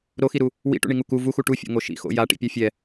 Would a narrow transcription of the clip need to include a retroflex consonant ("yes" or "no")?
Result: yes